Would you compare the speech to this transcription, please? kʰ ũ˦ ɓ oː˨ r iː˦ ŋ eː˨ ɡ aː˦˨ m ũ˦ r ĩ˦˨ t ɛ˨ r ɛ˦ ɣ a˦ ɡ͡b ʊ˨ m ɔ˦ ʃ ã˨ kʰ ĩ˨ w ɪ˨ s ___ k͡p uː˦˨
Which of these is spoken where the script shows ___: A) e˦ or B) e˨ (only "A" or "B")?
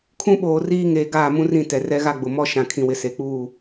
B